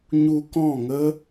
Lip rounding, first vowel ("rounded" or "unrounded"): rounded